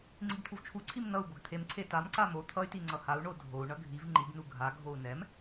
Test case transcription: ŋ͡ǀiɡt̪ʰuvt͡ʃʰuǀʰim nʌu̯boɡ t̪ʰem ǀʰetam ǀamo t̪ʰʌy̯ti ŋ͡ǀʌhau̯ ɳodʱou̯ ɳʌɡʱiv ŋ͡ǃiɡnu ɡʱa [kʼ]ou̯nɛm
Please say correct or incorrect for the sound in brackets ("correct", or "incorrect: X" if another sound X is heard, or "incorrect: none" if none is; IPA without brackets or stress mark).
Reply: incorrect: ɡʱ